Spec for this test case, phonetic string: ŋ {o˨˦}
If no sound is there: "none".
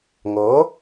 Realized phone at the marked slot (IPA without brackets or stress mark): o˨˦